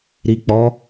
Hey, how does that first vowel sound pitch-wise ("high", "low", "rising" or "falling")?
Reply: low